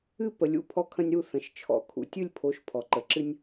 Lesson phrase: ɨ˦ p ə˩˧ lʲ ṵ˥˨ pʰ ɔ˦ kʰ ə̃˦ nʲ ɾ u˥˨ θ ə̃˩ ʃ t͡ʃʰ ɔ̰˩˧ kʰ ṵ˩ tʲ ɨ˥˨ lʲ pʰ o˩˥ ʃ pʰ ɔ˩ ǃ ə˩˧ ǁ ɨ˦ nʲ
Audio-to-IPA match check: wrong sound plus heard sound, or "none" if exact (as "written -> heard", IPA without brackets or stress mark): none